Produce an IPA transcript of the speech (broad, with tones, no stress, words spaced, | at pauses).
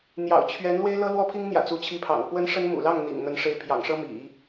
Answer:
n̪jɑ̰˨˩ʊ̯ t͡ɕʰɥɛ˧˥n lwe˥ɪ̯lɤ˥ lwɔ˥pʰi˥ŋn̪jä̰˨˩ t͡su˧˥t͡ɕʰi˧˥pʰɑ̰˨˩ŋ pwə˥nʂə˥nmṵ˨˩ lɑ˥˩ŋn̪ḭ˨˩ŋ n̪ə˧˥nʂe˧˥ɪ̯pʰjɑ̰˨˩ŋʂɤ˥ mḭ˨˩˦